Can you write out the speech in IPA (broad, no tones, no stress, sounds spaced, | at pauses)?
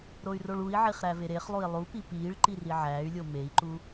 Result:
ɾ o y̯ r o ɭ u i̯ ʕ i χ ɾ æ v e ɾ e χ lˠ u i̯ lˠ u p i p iː ɭ ǃ i r i ʕ æː y̯ lʲ o m e i̯ ǃ u